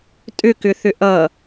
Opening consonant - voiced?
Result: no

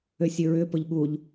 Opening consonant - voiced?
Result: no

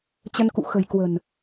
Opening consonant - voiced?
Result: no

